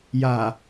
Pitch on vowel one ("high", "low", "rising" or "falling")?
low